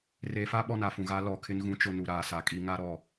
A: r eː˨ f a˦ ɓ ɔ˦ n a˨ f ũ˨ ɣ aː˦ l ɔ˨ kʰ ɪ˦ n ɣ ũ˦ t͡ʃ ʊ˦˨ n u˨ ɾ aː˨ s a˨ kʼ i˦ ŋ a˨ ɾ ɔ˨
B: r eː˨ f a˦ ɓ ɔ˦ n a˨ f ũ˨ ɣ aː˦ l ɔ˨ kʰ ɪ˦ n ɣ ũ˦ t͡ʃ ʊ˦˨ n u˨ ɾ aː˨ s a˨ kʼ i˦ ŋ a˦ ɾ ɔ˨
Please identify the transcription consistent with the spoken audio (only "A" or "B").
B